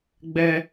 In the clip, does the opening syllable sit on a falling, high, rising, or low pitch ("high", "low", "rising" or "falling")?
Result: high